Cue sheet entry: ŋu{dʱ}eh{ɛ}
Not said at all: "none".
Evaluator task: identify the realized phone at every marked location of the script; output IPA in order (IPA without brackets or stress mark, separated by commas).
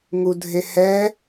dʱ, ɛ